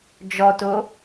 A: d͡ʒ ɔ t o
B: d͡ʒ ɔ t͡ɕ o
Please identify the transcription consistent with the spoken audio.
A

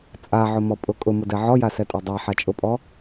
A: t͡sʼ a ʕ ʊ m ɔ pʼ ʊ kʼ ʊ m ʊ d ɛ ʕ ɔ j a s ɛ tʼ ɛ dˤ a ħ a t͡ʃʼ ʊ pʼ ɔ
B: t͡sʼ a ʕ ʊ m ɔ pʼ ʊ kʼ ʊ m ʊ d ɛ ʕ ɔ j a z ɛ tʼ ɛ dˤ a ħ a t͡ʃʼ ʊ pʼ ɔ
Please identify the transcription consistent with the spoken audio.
A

